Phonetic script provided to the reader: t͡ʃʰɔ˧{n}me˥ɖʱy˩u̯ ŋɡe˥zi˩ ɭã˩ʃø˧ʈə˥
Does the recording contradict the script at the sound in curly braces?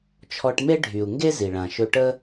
yes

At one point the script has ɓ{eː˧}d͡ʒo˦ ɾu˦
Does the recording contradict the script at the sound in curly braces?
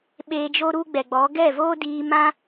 no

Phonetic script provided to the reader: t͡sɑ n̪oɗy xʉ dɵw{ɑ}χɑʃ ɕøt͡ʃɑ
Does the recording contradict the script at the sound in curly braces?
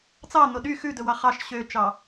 no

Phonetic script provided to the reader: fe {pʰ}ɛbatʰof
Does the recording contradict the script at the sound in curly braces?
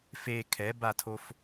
yes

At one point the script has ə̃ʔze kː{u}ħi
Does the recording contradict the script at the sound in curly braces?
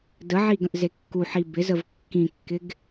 no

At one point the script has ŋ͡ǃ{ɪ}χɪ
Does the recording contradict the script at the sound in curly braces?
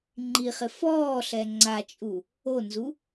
yes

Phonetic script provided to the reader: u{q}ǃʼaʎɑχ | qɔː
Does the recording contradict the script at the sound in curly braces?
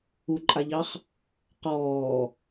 yes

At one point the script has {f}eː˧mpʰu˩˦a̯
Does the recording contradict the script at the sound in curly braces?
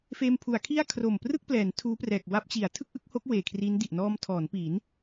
no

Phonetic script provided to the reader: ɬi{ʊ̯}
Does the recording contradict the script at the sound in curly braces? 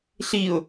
no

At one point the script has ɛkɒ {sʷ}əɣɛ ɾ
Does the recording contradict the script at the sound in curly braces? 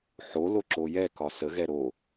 yes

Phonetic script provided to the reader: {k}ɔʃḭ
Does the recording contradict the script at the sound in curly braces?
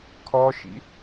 yes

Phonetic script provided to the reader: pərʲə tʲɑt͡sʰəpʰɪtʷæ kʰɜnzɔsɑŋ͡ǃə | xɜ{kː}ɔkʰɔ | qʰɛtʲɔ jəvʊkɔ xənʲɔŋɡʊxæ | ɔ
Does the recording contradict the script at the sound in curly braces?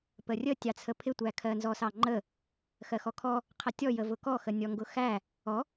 yes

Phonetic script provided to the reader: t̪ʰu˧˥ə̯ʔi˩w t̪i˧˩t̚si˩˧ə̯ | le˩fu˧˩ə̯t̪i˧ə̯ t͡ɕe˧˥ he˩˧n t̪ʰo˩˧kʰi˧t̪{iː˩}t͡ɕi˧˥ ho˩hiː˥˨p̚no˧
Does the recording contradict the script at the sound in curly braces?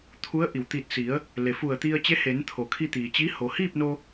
no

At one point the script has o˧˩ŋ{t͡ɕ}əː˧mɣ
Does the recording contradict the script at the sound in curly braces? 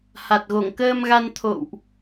yes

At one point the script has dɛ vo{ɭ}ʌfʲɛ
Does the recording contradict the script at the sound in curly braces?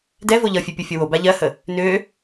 yes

